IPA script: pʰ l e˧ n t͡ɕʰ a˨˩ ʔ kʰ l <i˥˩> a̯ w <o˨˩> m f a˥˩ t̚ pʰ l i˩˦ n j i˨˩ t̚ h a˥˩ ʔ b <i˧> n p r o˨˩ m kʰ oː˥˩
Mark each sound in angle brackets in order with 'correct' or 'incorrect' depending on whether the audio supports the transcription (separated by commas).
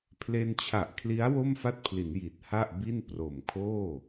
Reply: incorrect, incorrect, incorrect